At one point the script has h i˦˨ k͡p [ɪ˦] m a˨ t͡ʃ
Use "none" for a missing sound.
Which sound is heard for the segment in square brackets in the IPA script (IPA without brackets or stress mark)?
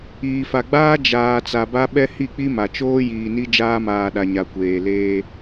i˦